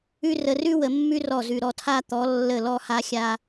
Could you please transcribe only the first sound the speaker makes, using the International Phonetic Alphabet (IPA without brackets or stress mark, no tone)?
ʉ